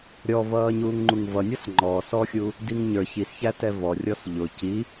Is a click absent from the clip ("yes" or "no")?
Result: no